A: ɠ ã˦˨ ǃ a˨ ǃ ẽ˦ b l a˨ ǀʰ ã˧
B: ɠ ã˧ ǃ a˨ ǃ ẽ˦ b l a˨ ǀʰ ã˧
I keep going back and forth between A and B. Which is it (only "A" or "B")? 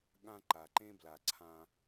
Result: B